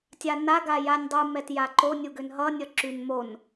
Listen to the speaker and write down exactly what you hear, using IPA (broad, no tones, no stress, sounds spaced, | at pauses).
tʲ a n a ɡ a j a nʲ dˤ u m ɛ t j a ǃ o nʲ u ɡ ø n ɦ ʌ nʲ ʌ ǁ y n m o n